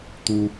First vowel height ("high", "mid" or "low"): high